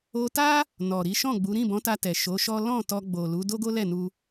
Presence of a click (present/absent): absent